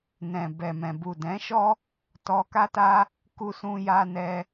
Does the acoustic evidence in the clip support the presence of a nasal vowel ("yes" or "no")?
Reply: yes